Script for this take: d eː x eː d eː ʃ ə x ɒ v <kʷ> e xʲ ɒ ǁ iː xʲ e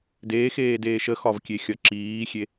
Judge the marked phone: incorrect: kʲ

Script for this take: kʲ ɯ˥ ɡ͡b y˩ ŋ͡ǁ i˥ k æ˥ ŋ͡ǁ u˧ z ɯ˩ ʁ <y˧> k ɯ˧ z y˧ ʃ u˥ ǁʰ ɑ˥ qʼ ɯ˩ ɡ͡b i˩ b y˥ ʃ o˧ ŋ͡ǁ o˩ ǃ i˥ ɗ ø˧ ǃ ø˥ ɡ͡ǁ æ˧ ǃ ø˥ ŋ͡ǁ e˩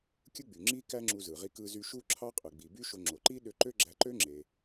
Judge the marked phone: incorrect: i˧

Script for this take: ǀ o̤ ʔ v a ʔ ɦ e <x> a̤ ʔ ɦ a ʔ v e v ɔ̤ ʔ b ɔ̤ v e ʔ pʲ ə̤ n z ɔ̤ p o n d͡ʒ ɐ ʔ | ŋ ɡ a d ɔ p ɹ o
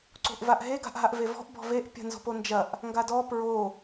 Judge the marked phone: incorrect: ɡ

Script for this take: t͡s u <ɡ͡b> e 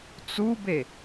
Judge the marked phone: incorrect: b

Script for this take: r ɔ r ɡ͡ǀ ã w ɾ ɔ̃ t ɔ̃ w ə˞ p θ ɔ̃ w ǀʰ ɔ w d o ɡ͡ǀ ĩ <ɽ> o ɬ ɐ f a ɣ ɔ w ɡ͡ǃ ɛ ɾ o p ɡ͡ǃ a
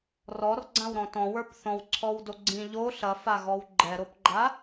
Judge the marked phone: incorrect: ʎ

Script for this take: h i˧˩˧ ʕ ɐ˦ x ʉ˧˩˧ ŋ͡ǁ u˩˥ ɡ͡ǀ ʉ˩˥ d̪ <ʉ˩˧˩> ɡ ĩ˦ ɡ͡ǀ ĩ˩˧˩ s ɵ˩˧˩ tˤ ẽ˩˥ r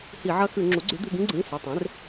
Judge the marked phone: correct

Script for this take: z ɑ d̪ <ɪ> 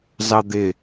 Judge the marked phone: correct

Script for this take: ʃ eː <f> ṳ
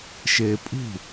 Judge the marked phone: incorrect: pʼ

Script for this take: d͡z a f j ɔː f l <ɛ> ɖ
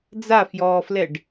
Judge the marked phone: correct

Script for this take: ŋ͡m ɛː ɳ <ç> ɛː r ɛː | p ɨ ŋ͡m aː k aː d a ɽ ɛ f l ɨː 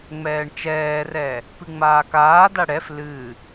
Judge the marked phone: incorrect: t͡ʃ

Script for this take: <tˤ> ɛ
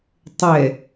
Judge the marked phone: correct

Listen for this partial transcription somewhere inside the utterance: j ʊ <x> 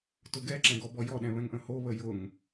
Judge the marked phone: incorrect: ŋ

